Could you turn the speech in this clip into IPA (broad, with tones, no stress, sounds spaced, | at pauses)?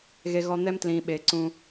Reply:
ɣ e˨ ɣ ɔ˨ n̪ ɛ˦ m t l ĩː˨ ɓ eː˨ ǀ ũ˦